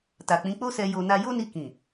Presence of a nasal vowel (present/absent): present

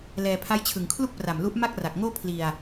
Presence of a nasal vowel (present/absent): absent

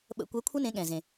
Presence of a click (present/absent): absent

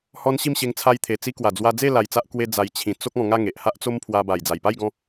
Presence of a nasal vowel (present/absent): present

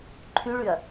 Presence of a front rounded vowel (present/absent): present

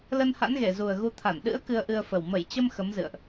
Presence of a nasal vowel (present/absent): absent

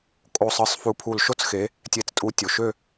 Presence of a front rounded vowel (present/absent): present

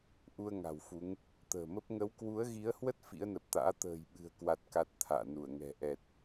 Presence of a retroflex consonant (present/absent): absent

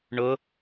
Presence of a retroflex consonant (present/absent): present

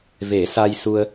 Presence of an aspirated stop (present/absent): absent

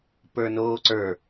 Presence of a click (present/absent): present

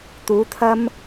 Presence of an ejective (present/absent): absent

